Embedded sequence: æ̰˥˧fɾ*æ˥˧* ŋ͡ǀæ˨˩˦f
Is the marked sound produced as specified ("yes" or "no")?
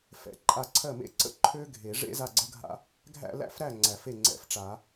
no